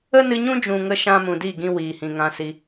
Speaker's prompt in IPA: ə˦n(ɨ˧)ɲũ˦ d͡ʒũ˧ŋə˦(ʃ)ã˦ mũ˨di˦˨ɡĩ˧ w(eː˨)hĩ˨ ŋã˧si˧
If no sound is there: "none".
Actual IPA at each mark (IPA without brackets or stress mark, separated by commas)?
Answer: ɨ˧, ʃ, iː˨